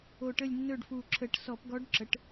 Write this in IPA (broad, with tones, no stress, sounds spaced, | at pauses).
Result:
o˨˩ ʈ ə˦˨ lʲ nː ɵ˦˨ ɖ f u˨˩ ǁʰ ə˧˩˧ ʈ s ɔ˧˩˧ p ɡ ɔ˧˥ ɖ ǁ ə˩˥ ʈ